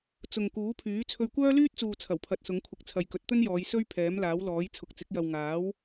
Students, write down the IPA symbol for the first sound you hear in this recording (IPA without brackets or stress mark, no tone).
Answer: t͡s